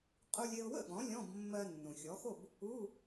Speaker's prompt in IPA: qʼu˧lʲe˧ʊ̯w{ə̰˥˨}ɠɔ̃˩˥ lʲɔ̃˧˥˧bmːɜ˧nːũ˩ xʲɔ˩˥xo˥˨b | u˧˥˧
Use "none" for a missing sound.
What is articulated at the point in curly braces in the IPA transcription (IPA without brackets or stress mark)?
ə̰˥˨